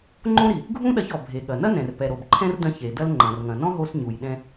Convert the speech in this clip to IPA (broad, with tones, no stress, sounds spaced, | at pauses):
ŋ͡ǃ õ˥ ɾ i˩ | ɡʱ ũ˥ ɗ ɐ˧ ç ɔ˩ bʱ e˩ ɠ ɐ˩ n ɐ˥ n ɛ̃˩ r p ɛ˩ ɾ o˩ b ǃʰ ɛ̃˥ r d ɐ̃˧ ç e˩ d ɐ˥ l ŋ͡ǃ ɐ̃˩ r ŋ ɐ̃˩ n ɔ̃˥ ɦ o˧ s ɲ u˩ j ɗ ɛ̃˧